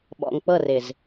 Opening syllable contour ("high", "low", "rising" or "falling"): low